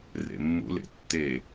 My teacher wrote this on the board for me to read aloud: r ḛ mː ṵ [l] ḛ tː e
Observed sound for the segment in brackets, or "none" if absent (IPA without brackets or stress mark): l